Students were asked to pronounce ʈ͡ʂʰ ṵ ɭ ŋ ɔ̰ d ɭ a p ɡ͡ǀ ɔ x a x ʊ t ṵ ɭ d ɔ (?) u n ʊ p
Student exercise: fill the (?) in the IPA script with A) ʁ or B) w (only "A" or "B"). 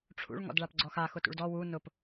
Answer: B